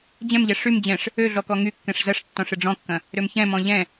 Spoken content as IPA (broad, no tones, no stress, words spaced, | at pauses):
d͡ʑɛ̃mʎɛ ʂym d͡ʑɛ̃ʂ | ø ɮɔkɔŋykːɛ̃ʂ zɐʂtːɔ̃ʂ ɪɖ͡ʐɔ̃kːɐ̃ | ɾømçɛ̃mɔ̃ ʎɛ̃